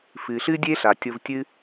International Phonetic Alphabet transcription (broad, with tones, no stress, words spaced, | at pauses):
fɨ˨ɬɨ˦dʲe˦ ɬa˨tʲo˧v tʲɨ˦